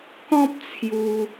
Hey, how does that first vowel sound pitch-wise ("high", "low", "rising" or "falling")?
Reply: high